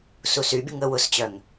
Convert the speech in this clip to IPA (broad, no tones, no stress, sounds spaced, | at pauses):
s u s y bʲ ə ŋ ə w ʊ s t͡ɕ œ ŋ